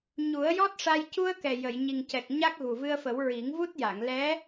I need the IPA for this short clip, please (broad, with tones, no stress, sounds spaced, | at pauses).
ɲ u˨˩˦ ə̯ j ɔ˦˥ t̚ ʂ a˧ j c u˧ ə̯ k ɛ˨˩ j ə˨˩˨ j ɲ i˨˩ ŋ c ɛ˨˩ k̚ ɲ a˦˥ k̚ ɣ u˨˩ v ɨ˧ ə̯ f ə˨˩˦ w ɹ i˨˩˦ ŋ v u˦˥ t̚ j a˨˩˨ ŋ l ɛ˧˥